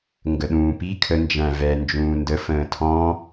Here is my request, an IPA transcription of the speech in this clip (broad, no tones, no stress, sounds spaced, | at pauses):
ŋ ɡ ə ɗ ũː p i kʰ ə n d͡ʒ æ̃ v ɛ n d͡ʒ ũː n d ə f ə̃ː tʰ ɔ̃